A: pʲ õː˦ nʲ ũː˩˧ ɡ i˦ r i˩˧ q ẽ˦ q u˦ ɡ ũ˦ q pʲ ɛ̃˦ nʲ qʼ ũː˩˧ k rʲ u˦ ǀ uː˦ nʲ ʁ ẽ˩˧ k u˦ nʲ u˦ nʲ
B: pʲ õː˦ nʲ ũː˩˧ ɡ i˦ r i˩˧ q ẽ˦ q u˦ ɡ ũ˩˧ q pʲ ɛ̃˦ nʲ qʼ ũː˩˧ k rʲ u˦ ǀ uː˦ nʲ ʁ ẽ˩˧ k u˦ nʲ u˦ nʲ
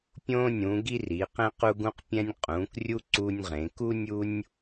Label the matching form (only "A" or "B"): A